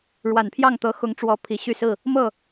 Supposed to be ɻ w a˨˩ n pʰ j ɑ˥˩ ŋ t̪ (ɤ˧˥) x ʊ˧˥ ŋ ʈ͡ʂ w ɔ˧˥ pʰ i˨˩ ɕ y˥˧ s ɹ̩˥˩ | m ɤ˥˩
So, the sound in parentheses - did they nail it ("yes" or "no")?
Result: yes